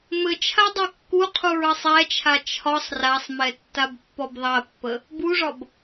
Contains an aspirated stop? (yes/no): yes